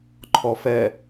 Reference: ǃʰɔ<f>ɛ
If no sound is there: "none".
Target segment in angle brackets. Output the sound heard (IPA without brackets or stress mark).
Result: f